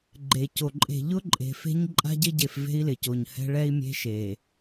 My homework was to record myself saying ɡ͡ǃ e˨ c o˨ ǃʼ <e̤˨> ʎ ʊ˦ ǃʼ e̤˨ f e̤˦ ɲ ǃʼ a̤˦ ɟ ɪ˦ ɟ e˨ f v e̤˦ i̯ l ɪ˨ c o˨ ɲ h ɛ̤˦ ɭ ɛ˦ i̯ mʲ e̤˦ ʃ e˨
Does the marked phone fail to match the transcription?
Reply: no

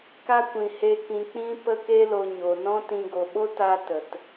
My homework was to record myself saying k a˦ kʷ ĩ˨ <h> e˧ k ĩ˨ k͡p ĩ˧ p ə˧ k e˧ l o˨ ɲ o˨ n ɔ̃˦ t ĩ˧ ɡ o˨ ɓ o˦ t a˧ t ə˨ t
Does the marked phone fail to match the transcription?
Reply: no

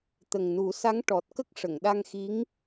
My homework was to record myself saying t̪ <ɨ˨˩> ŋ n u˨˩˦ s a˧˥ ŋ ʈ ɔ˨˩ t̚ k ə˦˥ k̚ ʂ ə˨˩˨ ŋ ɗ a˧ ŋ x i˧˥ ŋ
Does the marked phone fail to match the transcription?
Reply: yes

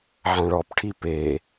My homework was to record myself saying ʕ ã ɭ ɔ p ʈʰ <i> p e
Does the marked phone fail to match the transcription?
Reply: no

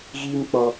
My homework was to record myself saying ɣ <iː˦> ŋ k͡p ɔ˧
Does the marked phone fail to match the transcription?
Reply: no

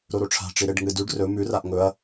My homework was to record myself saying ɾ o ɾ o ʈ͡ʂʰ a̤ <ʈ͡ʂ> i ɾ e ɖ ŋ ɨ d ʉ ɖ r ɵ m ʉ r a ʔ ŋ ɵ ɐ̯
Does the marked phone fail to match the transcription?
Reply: no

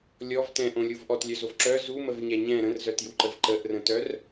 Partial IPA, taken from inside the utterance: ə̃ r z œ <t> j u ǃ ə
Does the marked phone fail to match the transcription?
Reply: no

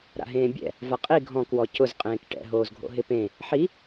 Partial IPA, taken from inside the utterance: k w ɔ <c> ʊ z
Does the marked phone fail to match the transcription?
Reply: no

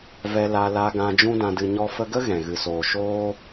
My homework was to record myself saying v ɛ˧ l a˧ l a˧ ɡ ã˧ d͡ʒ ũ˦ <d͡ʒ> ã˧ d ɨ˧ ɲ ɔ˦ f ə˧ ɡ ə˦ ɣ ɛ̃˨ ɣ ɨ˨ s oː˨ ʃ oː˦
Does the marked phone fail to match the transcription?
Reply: yes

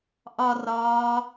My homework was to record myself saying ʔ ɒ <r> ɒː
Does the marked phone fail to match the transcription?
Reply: no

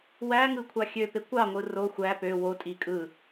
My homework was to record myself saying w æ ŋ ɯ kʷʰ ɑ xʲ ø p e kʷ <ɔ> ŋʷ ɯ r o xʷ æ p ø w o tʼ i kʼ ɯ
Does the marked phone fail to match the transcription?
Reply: yes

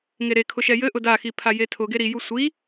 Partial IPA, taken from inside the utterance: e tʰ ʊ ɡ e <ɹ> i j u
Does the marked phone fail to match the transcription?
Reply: yes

